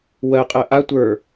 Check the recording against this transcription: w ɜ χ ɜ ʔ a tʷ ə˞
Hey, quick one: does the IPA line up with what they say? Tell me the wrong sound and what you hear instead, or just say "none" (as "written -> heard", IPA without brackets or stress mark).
χ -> qʼ